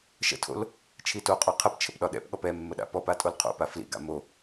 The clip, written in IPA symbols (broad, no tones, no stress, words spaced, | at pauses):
ʃə̰tʰo̰l | t͡ʃʰitoqʼɔ qʰəp t͡ʃʰəpɗɒɗɛ̰pɠɔp ɛ mːəɗa̰pɔpa tʼolqʰo̰pa flḭɡa̰ mo